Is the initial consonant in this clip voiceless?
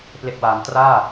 yes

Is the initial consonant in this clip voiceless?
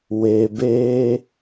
no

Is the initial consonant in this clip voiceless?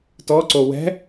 yes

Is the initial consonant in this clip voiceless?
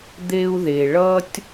no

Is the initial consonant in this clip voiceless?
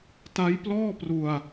yes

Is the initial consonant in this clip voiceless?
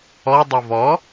no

